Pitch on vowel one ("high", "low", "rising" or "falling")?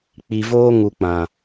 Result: low